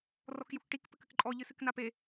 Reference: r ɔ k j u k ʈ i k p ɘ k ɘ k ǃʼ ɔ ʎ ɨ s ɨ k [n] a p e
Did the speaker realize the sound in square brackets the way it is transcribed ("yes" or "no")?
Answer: yes